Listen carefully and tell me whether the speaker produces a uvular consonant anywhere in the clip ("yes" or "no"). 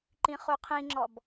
yes